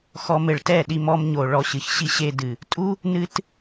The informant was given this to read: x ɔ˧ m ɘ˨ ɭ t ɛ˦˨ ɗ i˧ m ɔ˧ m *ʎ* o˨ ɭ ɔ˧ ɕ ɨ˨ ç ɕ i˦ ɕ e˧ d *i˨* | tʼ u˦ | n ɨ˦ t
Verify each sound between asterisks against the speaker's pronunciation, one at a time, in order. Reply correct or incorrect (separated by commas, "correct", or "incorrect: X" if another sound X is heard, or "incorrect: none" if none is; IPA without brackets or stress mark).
incorrect: ɲ, incorrect: ɨ˨